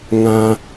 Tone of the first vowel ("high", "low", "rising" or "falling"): high